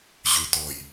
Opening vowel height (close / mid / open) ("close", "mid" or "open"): close